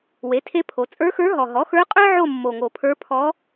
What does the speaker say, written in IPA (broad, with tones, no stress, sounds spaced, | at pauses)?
w e˩˥ tʰ e˧˥ pʰ o˩˧ t͡sʼ ə˞˧˥ x ə˞˧˥ ɦ ɔ˨˩ ɦ ɔ˩˥ x ə˞˧˥ qʼ ə˞˥ ʕ o˦˨ mː o˨˩ ŋ o˨˩ pʰ ə˞˧˥ pʰ ɔ˧˥